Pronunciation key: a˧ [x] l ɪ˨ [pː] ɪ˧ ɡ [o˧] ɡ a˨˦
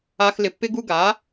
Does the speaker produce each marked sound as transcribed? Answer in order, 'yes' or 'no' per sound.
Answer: yes, yes, no

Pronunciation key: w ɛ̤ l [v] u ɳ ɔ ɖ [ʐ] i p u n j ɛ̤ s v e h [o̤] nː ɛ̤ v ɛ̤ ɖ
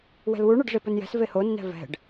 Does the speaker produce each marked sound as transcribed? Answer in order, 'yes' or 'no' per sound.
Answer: no, yes, no

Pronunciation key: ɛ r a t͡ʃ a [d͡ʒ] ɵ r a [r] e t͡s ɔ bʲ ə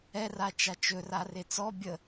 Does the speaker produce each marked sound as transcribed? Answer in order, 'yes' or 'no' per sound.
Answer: no, yes

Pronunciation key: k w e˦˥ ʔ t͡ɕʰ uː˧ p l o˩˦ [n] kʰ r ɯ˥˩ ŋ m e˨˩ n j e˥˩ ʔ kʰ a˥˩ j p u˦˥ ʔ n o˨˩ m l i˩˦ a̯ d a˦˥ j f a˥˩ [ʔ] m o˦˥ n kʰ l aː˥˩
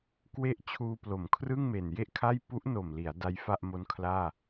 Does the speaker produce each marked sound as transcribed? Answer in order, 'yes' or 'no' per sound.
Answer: no, yes

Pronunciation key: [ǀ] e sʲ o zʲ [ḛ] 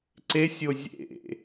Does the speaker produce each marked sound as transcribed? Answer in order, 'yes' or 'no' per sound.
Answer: yes, yes

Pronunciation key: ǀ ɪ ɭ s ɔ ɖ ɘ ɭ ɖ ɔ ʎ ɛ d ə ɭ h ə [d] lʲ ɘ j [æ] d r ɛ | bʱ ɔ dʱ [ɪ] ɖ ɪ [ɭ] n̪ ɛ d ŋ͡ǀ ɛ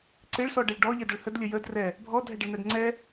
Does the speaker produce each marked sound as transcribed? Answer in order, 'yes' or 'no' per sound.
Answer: yes, no, no, yes

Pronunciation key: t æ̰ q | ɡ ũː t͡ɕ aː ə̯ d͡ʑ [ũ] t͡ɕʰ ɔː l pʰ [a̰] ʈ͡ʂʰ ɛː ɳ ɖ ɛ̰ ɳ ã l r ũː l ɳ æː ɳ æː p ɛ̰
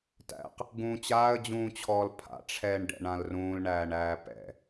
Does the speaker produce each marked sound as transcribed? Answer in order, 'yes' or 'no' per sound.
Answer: no, yes

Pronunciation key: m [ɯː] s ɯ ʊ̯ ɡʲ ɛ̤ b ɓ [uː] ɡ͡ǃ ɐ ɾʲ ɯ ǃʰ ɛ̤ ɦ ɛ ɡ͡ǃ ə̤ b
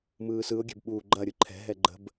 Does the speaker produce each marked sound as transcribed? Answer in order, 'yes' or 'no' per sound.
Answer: yes, yes

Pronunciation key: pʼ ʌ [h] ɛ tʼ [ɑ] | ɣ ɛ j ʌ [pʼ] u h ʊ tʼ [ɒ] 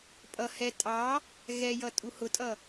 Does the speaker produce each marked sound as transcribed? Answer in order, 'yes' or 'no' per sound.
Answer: yes, yes, no, no

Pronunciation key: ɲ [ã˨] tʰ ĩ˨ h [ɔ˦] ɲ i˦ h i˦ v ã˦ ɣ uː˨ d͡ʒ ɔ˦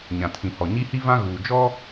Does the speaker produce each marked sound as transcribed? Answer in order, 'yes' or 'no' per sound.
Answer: yes, no

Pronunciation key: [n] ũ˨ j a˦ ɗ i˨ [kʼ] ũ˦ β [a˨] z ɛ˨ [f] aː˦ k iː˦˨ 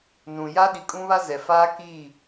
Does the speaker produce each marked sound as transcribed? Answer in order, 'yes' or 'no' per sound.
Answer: yes, yes, no, yes

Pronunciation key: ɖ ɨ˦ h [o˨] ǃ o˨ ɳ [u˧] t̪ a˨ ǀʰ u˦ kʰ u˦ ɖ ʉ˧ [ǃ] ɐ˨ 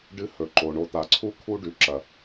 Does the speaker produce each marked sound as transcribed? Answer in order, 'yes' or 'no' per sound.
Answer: no, no, no

